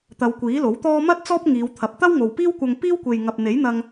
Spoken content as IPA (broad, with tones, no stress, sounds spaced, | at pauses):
t̪ ɐ˨˧ w kʷ iː˨˥ l o˨˥ w t̪ ɔː˥ m ɐ˥ t̚ t͡s ɔː˥ p̚ ŋ iː˨˧ w t̪ʰ ɐ˨ p̚ t̪ ɐ˥ w ŋ o˨ w p iː˥ w kʷ ɐ˧ ŋ p iː˥ w kʷ e˨ j ŋ ɐ˨ p̚ n̪ e˨˥ j n̪ ɐ˧ ŋ